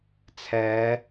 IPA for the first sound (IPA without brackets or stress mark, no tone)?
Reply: t͡sʰ